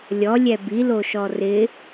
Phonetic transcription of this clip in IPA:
lʲ ɔ lʲ ɛ b i l o ʃ ɔ r ɪ

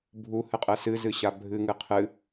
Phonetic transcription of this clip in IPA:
bʱ u h ɨ qʼ ɛ s ɨ z ɨ ɕ a bʱ ɨ ŋ ɨ qʰ ɨ

